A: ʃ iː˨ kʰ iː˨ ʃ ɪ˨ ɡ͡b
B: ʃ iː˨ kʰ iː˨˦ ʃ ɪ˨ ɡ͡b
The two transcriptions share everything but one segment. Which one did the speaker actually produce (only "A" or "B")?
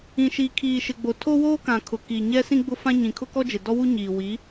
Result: A